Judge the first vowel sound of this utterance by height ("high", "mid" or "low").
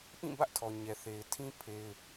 high